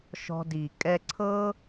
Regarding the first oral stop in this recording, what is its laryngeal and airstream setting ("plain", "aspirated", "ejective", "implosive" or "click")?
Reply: plain